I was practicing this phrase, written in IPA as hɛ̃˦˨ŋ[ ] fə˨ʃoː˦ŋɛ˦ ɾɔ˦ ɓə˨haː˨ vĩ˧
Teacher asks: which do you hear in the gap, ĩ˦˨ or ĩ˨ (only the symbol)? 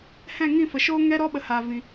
ĩ˦˨